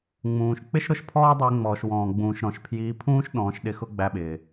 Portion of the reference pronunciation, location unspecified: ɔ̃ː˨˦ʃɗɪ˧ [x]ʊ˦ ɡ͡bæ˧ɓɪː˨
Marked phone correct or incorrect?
correct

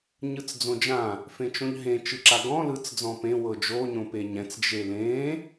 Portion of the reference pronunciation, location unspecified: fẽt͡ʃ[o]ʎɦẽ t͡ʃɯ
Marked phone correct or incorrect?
incorrect: õ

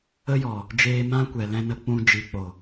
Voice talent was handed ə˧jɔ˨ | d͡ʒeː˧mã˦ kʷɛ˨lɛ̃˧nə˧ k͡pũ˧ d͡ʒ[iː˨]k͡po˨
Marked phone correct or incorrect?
incorrect: i˨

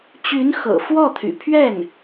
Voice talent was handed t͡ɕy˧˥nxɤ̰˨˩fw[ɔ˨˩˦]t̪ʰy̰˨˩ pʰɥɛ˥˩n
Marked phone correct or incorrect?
incorrect: ɔ˥˩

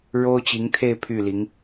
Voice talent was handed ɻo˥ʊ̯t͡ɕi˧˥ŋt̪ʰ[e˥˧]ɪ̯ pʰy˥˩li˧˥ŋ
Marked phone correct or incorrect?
correct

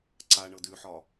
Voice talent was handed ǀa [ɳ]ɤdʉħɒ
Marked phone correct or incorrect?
correct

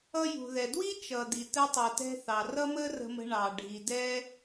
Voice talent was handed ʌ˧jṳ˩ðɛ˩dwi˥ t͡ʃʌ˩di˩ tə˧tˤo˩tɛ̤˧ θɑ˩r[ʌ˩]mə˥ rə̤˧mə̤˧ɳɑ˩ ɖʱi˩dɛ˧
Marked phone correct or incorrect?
incorrect: ʌ˥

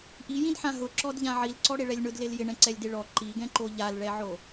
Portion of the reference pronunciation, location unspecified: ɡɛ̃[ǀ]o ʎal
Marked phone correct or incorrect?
incorrect: ǃ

